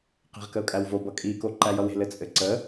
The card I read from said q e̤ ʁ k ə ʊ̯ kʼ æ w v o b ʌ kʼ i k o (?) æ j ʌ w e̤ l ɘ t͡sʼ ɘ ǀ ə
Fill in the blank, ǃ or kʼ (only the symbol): ǃ